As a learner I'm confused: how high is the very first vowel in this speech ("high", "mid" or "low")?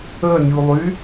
mid